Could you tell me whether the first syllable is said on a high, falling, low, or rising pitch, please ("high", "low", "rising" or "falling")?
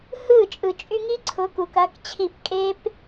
falling